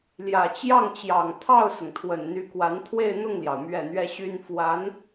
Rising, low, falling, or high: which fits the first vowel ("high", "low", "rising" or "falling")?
low